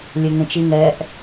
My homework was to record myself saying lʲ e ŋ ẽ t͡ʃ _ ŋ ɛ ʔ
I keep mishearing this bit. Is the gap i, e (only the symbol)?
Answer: i